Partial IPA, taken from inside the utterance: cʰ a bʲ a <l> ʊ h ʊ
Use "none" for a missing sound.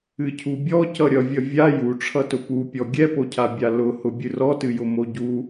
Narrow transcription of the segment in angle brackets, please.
l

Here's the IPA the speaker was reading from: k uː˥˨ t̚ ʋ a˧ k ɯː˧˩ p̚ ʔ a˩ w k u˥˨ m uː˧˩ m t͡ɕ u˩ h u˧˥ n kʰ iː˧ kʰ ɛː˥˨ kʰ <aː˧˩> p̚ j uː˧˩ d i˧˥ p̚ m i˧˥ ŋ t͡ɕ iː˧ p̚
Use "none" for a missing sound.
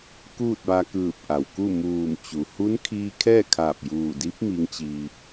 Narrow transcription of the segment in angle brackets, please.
aː˧˩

